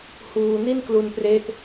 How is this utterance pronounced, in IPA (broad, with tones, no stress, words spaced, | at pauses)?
huː˧ ni˥˩nklu˧npre˦˥ʔ